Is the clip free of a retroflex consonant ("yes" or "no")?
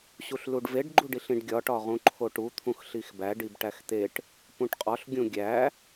no